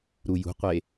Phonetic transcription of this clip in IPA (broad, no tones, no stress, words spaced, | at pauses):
ɾujṳqʷe